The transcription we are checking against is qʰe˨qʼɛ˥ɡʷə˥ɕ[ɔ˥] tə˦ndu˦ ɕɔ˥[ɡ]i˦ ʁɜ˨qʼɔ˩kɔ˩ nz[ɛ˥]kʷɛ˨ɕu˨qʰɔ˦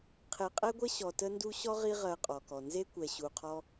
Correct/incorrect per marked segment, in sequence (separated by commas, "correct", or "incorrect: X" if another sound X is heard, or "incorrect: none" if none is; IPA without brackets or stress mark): incorrect: ɔ˨, incorrect: ʁ, incorrect: e˥